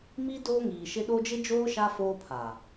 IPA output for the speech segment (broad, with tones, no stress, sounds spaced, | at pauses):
m i˦ d oː˦ ŋ iː˨ ʃ ɪ˦ ɗ o˦ d͡ʒ ɪ˦ d͡ʒ oː˦ ʃ a˦ f oː˦ pʰ a˨